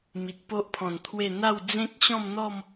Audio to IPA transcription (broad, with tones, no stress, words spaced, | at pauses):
mi˨t̚po˦ʔpʰɔ̃˨˩nt̪ʰwe˥˧ n̪a˥˧w d͡zẽ˦k̚ɕɔ̃˥˧mn̪ɔ˥˧m